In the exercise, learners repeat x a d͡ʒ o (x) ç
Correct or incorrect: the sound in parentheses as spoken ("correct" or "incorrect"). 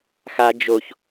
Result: incorrect